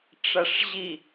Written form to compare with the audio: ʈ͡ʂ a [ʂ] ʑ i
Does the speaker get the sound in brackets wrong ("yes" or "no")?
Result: no